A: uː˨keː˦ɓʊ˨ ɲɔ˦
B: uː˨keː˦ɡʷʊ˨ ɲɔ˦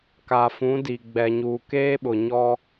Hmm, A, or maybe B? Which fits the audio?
A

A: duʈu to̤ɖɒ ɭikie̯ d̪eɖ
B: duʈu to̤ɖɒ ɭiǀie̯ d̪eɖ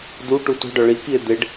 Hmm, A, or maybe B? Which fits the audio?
A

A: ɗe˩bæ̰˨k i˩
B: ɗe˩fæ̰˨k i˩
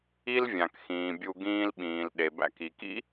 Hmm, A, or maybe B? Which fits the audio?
A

